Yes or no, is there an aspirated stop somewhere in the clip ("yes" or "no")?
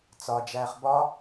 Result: no